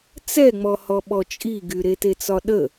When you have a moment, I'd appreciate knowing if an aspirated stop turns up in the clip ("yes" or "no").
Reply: no